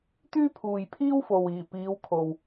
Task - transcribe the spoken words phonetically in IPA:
t̪yː˥pʰuː˨jpʰiː˥wfo˨w iː˨˩piː˨˧w kʰo˨w

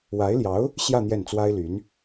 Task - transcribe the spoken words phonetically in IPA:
wa˧˥ɪ̯ljɑ˧˥ʊ̯ | ɕjä˥˧ n̪jɛ˥˩nt͡swa˥ɪ̯ly˧˥n

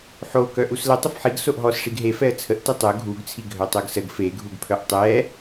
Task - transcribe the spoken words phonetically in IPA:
ħo kœʔuslə tˤəfħiɡ soʔɦɔs ʂiɡɦe fɛə̯t͡sʰəʔ tətˤœ ɡʱuɡt͡sʰi ɡʱœtˤœɡsəɡ feɡʱuɡpʰœʔ tˤɛ

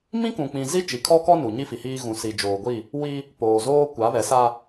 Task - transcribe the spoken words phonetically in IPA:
mĩ˦kũ˨k͡pĩ˨ zi˦ t͡ʃi˨kʰɔ˦kɔ˦nu˨ ɲi˦fi˨hiː˦ ɣũ˨si˨d͡ʒoː˨ɡʷi˦˨ | wi˦ | poː˨zoː˦ kʷa˨˦βɛ˨˦sa˦

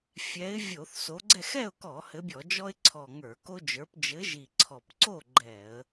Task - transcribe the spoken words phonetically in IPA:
fʲɛ˨˦ɪ̯ vʲo˧˩˧θso˨˦ɡ͡ǀɛ˥˨x ɛ˥˨ʊ̯kɔ˧˩˧ hɘ˨˦bʲɔ˧˩˧d͡ʒɔ˦ɪ̯ ǀʰɔ˨˩ ŋə˞˧˩˧ko˦d͡ʒə˞˨˦p d͡ʒɘ˨˦ʒi˨˩ǀʰɔ˨˩pǀo˥˨ ɡ͡ǃɛ˧˩˧ə̯

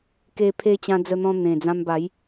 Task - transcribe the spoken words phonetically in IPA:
ke˧pʰe˧ t͡ɕã˧d͡zə˧n̪ɔ̃˧ n̪ẽ˨˩d͡zã˧mba˨˦j

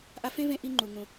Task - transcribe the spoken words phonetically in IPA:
ʔa˧fẽ˥vẽ˧ ʔi˧ŋ͡ǃu˩ŋũ˩

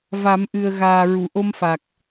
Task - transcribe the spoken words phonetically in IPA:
va˨˩˦mʔɨ˨˩ə̯ɣaː˨˩ ɹu˨˩˨ʔo˧mfa˨˩k̚

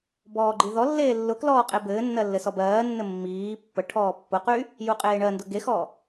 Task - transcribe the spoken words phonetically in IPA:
bɔːɡ͡ǃiðɔlːeː lːʊklɔː qʼebɘːnːɜ lːɘsɔbɜːnːɘ mːiː pːəʈʰɔː pːʊqy | juqʼeːɳɜndʊ ɡexɔ

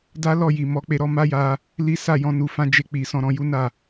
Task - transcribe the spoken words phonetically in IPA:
da˦lɔ˦˨ji˨ mɔ˨˦k͡pe˧ ɾɔ˧ma˦ja˧ | li˦ sa˦˨jɔ̃˧ nu˨fã˧ d͡ʒe˧ k͡pi˨sɔ̃˧ɾɔ̃˧ ju˦na˦˨

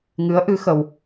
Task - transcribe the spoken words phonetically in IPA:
ŋɨ˨˦ə̯ʔɨ˨˦ xə˧w

